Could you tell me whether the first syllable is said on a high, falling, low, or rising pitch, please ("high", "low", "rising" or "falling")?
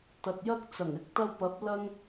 low